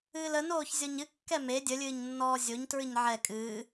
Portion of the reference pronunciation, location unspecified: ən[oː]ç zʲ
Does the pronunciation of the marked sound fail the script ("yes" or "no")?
no